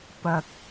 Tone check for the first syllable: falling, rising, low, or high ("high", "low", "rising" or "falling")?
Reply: low